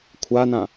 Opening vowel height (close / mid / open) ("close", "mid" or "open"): open